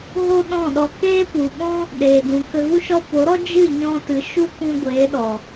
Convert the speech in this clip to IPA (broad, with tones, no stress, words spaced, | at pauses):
ɣo˦ɗɔ̃˦˨ɗɔ˧ keː˦pu˨ɓɔ̃˦ | ɗeː˨dũ˨ kə˧ɣu˦ʃɔ˦ po˨˦ɾɔ˦ d͡ʒɨ˦˨ɲɔ̃˧tɨ˨ ʃu˦kũ˧ɡʷeː˨˦ɗɔ˨